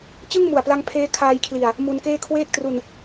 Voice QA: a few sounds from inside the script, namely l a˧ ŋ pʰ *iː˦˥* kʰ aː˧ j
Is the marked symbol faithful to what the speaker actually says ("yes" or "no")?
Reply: no